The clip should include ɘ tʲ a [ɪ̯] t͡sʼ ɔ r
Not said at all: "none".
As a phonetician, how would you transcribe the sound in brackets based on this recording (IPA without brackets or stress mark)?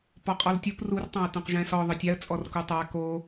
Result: ə̯